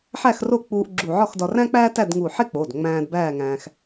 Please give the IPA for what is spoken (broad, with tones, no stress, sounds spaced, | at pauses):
ħ æ˥˨ x r o˥˨ k͡p uː˧ ʔ ɡ͡ǁ u˧˩ ʕ ɒ˥˨ x d ɒ˧ r æ̃˥ k͡p æː˥ t æ˥˨ d ŋ u˧˩ ħ e˥ k͡p o˩˧˩ d ŋ͡m æ̃ː˧ d b æː˥˨ ŋ æ̃ː˧ x